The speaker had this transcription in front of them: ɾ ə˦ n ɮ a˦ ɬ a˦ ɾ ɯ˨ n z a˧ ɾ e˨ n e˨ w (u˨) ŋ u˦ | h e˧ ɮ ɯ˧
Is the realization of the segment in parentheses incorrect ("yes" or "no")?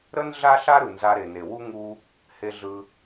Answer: yes